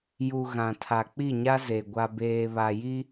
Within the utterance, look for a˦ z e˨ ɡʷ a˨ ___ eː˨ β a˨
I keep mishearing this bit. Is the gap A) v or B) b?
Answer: B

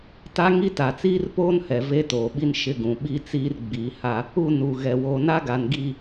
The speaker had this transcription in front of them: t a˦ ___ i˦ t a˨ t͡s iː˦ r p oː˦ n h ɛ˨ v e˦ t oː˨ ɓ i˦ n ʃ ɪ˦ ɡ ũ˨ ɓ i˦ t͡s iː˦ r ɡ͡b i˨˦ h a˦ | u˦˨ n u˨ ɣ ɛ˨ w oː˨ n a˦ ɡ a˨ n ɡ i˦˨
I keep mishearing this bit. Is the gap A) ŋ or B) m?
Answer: A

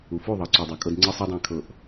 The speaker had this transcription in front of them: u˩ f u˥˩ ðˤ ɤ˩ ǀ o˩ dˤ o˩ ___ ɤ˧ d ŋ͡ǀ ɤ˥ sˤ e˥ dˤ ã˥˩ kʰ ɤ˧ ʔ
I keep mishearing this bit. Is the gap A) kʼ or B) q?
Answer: A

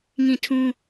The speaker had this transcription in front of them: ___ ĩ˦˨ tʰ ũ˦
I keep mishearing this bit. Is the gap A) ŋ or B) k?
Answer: A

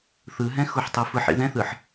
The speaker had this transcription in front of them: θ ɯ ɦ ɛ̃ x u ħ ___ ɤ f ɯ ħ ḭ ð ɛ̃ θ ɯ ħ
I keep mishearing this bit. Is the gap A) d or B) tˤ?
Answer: B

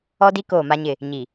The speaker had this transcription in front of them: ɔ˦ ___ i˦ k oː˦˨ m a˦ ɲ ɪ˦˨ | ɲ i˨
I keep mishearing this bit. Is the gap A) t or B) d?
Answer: B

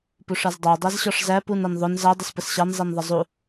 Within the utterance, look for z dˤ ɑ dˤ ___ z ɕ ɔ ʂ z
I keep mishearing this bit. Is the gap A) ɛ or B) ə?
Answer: A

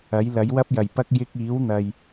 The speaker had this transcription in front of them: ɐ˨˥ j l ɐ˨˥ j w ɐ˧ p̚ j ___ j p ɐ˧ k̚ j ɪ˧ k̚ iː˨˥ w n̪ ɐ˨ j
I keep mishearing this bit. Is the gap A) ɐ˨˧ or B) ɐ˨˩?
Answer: B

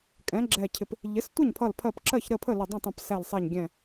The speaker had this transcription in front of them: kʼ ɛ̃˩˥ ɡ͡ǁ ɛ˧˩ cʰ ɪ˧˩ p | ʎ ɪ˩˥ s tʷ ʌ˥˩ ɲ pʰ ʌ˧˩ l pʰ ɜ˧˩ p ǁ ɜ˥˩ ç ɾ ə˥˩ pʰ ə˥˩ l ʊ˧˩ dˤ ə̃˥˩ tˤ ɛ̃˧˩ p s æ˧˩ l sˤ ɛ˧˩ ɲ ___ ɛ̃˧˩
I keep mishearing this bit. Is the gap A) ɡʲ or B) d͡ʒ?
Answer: A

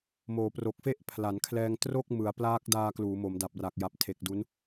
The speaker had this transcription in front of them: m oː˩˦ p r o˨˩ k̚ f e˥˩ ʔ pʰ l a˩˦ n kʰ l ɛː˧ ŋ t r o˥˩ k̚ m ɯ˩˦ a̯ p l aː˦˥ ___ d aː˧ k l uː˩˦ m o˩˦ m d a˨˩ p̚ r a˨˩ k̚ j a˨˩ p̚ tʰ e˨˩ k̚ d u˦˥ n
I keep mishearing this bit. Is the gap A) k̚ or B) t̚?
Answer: A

